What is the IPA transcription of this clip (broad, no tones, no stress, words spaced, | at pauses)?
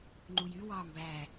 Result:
ŋ͡ǃujy wɑːmbæ